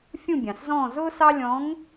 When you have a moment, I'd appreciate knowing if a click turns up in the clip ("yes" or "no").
no